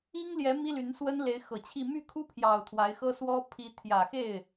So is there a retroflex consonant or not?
no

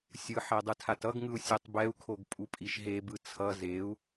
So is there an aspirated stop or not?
yes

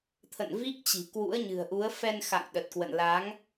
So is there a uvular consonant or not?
no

